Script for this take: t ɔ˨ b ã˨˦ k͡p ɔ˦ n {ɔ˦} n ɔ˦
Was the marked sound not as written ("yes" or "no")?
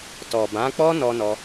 no